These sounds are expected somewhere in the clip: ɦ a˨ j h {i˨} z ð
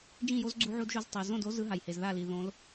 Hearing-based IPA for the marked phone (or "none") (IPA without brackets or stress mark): e˨